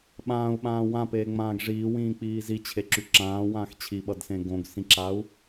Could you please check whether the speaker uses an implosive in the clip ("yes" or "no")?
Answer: yes